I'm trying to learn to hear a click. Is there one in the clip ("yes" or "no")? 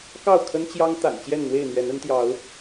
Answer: no